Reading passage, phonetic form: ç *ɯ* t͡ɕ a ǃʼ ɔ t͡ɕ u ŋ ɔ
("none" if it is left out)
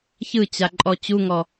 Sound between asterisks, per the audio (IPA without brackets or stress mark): ɯ